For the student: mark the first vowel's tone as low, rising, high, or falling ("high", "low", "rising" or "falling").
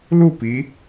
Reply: falling